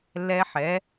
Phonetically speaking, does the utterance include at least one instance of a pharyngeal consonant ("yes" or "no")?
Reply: yes